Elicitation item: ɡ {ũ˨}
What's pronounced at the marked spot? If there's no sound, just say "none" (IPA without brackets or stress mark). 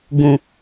ũ˨